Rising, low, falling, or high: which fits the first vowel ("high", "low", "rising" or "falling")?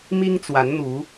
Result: high